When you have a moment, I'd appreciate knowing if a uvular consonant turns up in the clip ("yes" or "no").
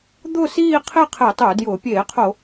yes